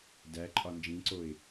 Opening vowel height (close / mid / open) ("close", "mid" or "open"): open